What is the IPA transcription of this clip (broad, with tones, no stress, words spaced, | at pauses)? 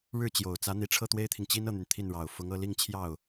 ɻɻ̩˥˩t͡ɕjo˨˩ʊ̯t͡sä˧˥ n̪i˧˥ʈ͡ʂʰɤ˥˩t̪we˥ɪ̯t̪ʰi˨ŋ t͡ɕi˥nɤ˥˩n̪y˩n t̪ʰi˥˩nɻɑ˨˩ʊ̯ fʊ˧˥ŋɤ˥˧li˥˧ŋ t͡ɕʰjɑ˥˩ʊ̯